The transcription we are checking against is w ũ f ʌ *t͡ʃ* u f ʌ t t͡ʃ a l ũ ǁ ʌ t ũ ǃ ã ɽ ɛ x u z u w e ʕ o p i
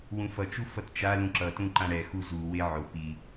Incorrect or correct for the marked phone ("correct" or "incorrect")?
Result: correct